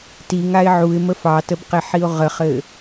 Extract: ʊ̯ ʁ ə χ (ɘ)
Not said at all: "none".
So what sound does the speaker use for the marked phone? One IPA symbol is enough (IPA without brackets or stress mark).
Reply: ɘ